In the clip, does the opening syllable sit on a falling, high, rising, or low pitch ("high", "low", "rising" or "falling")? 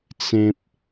high